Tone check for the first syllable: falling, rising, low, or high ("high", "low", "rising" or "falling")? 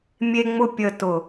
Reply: low